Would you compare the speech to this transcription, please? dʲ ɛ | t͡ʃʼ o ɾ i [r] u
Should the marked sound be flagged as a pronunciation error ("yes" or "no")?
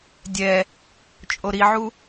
yes